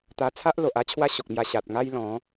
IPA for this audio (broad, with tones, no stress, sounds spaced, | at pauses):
t̪ a˧ t͡sʰ a˦ ʔ l o˨ ʔ a˦ t͡ɕʰ w a˦ ɕ o˨ k̚ m j a˧ ɕ a˨ t̚ ŋ a˦ j l ɔ̃˨˦